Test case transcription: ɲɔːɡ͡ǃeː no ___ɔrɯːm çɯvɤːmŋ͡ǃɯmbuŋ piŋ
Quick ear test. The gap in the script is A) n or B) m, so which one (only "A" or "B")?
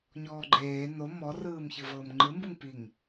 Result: B